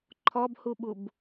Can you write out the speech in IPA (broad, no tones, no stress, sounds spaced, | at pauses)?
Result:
ǃʰ ɔ b h u ɓ u b